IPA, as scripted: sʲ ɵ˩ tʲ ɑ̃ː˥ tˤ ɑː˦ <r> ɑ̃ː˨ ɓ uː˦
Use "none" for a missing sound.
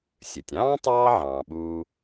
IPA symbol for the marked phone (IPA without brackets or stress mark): ʕ